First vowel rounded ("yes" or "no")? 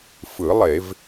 no